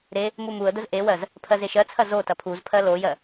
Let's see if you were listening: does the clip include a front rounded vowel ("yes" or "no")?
no